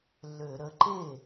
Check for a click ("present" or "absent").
present